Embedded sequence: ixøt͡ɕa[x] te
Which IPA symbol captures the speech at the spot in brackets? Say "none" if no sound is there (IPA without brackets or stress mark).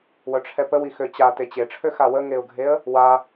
none